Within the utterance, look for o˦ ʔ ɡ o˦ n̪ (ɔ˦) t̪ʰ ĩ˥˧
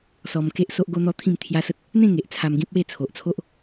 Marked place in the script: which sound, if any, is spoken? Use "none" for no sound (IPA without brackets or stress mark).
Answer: ɔ˦